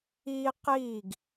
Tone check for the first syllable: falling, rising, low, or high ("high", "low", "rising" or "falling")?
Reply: high